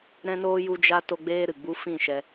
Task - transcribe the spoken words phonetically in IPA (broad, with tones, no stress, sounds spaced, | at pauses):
ɾ ɛ̃˦ n oː˦ j u˦ d͡ʒ a˦ t o˦ ɡ͡b eː˦ ɾ ɨ˨ ɡ͡b u˦ f ĩ˦˨ ʃ ɛ˧